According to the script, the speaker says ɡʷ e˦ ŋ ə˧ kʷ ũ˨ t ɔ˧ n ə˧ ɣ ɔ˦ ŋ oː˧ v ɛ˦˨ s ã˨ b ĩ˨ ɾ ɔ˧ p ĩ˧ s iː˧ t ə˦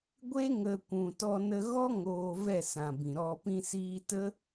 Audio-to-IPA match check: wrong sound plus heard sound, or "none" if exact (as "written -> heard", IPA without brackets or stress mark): none